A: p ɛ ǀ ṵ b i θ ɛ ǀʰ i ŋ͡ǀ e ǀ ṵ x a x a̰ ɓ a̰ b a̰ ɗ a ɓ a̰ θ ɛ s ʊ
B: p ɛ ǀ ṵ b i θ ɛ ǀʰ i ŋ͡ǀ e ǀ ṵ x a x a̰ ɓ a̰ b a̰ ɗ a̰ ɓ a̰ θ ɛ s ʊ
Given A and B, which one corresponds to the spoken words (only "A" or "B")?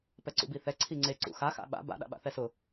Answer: B